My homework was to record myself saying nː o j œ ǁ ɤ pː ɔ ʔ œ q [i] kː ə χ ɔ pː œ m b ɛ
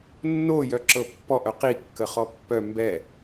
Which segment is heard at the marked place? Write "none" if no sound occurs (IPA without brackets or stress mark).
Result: i